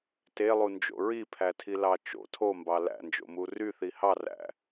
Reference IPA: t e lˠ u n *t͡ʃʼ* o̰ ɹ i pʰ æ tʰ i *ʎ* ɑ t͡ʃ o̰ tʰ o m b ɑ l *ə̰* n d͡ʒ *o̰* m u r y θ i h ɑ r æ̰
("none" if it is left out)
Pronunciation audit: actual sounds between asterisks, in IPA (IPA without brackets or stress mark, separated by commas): d͡ʒ, l, æ̰, o̰